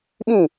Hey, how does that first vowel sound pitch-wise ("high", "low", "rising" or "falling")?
falling